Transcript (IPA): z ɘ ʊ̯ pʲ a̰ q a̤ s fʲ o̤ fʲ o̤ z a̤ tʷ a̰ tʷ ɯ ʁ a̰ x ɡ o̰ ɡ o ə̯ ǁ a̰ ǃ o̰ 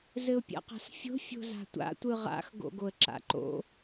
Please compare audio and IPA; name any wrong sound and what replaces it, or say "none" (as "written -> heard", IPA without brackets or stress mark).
none